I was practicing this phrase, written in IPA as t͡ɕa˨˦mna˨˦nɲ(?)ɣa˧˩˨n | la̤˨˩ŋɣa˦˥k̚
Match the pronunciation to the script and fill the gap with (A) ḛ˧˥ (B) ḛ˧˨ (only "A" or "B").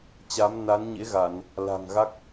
A